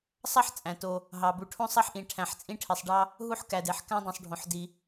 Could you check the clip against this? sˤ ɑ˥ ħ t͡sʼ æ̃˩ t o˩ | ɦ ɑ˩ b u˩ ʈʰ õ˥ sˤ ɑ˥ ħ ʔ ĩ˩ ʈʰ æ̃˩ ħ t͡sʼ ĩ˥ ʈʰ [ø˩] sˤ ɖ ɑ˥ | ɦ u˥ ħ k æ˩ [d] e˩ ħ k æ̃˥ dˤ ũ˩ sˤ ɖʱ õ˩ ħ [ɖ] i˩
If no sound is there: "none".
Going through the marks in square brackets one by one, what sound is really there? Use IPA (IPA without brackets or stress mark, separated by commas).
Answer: e˩, d, d